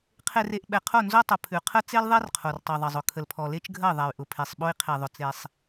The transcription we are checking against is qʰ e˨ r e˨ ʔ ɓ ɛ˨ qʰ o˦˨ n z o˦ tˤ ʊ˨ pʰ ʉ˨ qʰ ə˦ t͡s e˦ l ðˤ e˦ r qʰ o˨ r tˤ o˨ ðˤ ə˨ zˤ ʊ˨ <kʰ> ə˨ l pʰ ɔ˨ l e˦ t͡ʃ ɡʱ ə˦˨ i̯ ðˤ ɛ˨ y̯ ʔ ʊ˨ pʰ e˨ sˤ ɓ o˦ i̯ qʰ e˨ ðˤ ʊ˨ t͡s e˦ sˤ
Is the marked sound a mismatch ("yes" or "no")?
no